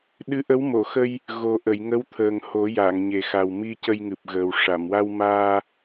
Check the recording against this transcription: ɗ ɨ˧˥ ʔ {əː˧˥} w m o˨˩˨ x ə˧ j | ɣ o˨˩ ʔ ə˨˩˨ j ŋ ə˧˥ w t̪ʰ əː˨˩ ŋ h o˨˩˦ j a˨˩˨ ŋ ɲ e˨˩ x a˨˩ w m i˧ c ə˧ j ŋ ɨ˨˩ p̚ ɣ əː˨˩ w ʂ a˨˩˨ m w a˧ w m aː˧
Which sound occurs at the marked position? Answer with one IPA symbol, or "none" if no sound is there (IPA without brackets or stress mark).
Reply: ə˧˥